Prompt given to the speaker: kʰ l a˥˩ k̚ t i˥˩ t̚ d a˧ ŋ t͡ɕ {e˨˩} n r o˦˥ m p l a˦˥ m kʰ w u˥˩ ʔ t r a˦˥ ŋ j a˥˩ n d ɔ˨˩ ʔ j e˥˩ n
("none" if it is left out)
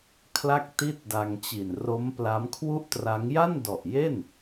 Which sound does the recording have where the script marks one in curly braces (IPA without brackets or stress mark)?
i˨˩